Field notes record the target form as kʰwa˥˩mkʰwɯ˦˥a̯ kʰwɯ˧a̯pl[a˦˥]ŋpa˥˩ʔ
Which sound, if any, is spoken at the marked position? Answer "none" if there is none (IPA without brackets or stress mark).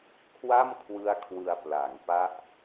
a˩˦